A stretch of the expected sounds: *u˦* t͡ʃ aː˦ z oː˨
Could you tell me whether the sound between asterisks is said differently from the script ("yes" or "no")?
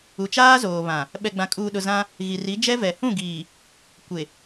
yes